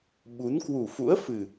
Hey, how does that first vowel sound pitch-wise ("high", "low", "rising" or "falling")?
rising